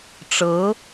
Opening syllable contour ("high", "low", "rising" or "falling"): rising